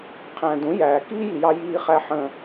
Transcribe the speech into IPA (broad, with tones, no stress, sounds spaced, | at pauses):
qʰ æ̃˩ d ũ˩˥ j æː˩ k iː˥ j i˩ j ɑ˧ j iː˧ χ æ˧ ħ ə̃˧